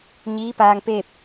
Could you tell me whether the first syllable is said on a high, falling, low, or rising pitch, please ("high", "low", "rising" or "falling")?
rising